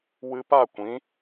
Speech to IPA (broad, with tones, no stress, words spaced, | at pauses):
wɨ˧pa˦˨kʷĩ˨˦